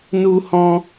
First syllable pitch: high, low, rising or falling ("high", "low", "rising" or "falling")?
high